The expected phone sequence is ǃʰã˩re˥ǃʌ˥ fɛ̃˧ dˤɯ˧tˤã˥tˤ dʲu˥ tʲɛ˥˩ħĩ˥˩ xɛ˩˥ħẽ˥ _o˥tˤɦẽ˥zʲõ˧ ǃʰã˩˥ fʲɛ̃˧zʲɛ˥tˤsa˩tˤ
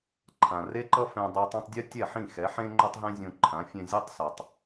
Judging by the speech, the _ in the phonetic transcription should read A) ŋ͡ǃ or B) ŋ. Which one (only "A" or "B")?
A